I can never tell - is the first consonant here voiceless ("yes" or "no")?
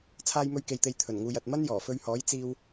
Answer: yes